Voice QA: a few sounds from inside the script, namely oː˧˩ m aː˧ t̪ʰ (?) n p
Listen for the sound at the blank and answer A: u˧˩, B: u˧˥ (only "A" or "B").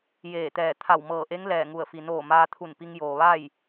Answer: A